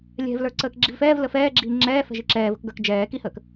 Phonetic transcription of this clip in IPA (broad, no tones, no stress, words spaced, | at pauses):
lʲɛ̤vlə˞ ǀəːkɡ͡ǁivfɛːv ləfɛː ɡ͡ǁiːŋ͡ǁɛːfɛ̤ ʒiǁɛːvə̤kɡə˞k d͡ʒɛː kihəːk